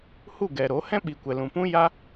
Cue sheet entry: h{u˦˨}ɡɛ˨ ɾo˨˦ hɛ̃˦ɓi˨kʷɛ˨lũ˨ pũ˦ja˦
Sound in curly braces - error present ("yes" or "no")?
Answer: no